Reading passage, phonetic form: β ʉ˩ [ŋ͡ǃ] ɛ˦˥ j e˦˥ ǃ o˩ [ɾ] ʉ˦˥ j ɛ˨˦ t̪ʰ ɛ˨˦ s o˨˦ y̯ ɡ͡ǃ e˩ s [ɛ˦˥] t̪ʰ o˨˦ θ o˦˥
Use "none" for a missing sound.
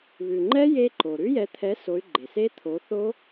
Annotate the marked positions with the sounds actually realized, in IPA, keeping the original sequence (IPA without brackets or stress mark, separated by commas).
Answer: ŋ͡ǃ, ɾ, e˦˥